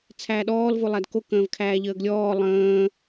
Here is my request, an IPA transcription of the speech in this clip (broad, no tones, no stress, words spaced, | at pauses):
t͡sʰæːɗɔːl volˠædko kə̃ːvkʰæːʎəːɡlʲɔː lˠə̃ː